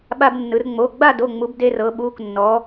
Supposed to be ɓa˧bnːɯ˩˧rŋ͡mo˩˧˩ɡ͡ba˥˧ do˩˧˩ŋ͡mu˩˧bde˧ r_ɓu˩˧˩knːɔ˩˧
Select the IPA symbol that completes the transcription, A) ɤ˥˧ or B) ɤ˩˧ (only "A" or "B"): B